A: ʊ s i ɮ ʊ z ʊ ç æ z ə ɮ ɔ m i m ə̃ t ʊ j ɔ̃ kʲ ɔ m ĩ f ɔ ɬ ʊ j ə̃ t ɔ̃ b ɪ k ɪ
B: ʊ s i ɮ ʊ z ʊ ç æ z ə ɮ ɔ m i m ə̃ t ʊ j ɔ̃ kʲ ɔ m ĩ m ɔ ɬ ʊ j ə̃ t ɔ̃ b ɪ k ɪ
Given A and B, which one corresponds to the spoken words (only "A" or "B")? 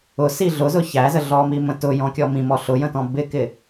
B